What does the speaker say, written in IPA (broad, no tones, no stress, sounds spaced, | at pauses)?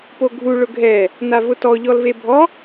p o ɡʱ u ɭ ʊ ɡʱ ɛ | n a v ʊ t ɔ ʎ ɔ l v e bʱ ɔ